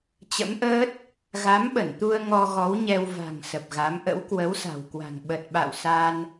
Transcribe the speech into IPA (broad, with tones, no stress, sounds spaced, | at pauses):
t͡ɕ ə̰˧˥ m ʔ əː˦˥ t̚ | ɣ a˨˦ m ɓ ə˧˩ n t̪ u˧ ə̯ ŋ ɔ˧ ɣ ɔ˨˦ w ɲ ɛ˧ w v a̤˨˩ ŋ s ə˨˩ p̚ ɣ a˨˦ m ʔ ə̰˧˥ w k w ə˨˦ w s a̤˨˩ w k w a̤˨˩ ŋ ɓ ə˨˩ t̚ ɓ a̰˧˨ w s a˧ n